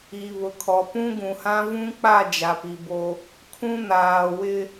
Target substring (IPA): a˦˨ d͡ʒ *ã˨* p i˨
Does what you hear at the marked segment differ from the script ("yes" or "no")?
yes